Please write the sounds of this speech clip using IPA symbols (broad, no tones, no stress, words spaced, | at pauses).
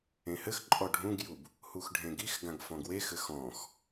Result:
ẽhɘxǃʼɔ ɖʱũɡjub | huxɖʱẽɡixɡãɡ fɔ̃ɡwexɘ xɔ̃x